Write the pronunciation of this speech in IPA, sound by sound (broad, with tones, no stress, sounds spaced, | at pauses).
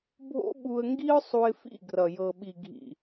bʱ o̰˦ ɓ u˧ ə̯ ŋ ɡ i˦ ʊ̯ sˤ u˧ ɪ̯ f ḭ˦˨ ɡ r ʌ˨ j ɤ˨ ɓ i˨ ɡʱ ḭ˨